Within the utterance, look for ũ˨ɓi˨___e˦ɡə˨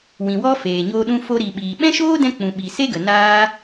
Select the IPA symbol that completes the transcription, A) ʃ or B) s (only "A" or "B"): B